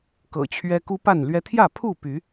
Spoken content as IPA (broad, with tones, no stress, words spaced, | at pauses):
kɤ̰˨˩t͡ɕʰɥɛ˦ ku˦pa˥˨nlɥɛ˦ t̪ʰjä˥˨pʰu˥˨ py˨˦